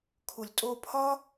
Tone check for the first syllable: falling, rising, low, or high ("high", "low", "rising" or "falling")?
low